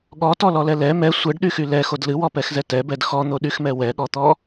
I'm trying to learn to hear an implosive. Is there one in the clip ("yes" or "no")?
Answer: yes